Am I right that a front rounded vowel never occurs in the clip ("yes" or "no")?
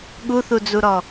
yes